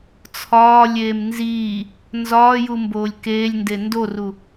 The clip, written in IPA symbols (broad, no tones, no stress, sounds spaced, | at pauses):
t͡sʰ ɒː lʲ eː m n z iː | n z ɒː j u m b oː lʲ k eː lʲ n d e n d o r u